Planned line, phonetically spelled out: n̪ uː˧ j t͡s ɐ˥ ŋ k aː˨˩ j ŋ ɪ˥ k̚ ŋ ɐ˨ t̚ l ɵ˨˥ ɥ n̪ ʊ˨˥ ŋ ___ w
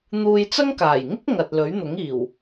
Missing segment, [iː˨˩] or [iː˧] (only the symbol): iː˨˩